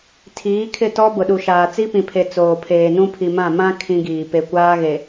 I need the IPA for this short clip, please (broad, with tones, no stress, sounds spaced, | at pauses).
tʰ iː˨˦ kʰ ɪ˦˨ t ɔ˦ b ʊ˨ ɗ u˨ ʃ aː˨ t͡s i˦ p ĩ˨ pʰ e˨ t͡s oː˨ pʰ eː˨ n ũ˦ pʰ i˨ m ã˦˨ m ã˦ kʰ ĩ˦ ɡ iː˨ p e˨ kʷ aː˦ ɣ e˨